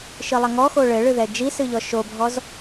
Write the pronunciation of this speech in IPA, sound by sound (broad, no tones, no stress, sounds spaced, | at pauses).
ʃ ɨ lˠ ɐ ŋ ɔ x o ɭ ɘ ɭ ɨ ð ɛ d͡ʒ i s ɨ ʎ ɔ ʃ o bʱ ɔ z